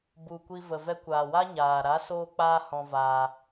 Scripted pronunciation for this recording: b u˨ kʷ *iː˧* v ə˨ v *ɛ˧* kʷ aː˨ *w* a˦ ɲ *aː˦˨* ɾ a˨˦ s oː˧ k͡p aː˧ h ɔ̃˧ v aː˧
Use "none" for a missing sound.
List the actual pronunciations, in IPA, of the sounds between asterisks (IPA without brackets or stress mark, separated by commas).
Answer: i˧, ɛ˧, w, aː˨